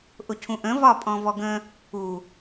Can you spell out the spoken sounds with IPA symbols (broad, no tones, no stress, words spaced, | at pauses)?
ʔʊcʰũʔə̃ vɒpʼɔ̃vɔɡə̃ | u